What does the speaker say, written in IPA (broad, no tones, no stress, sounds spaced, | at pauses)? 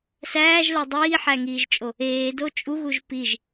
s æː ʒ l œ dˤ iː ħ æ ŋ iː ʒ t͡ʃʼ o | eː d o t͡ʃʼ u ɣ u ʒ p i ʒ